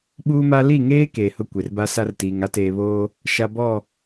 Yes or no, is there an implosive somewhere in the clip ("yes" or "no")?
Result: yes